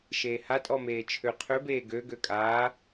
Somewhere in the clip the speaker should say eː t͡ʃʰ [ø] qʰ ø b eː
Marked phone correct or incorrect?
correct